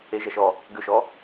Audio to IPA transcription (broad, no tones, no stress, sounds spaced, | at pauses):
e ʒ ɐ ʃ ɔ | ɡ ʏ ʃ ɔ